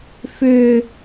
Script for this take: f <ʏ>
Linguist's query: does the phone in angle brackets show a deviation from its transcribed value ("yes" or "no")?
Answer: no